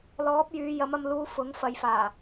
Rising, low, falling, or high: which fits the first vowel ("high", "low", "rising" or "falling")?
rising